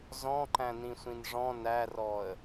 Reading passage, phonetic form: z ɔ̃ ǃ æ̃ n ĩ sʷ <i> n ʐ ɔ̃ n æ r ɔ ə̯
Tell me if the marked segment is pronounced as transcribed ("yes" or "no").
no